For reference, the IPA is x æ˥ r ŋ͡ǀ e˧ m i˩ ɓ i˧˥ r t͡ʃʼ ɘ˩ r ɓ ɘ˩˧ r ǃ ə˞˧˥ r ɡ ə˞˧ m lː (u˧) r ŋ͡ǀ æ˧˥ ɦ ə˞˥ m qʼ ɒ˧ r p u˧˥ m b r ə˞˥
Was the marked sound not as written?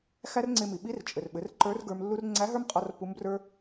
yes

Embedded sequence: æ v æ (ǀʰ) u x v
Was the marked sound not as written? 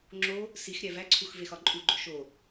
no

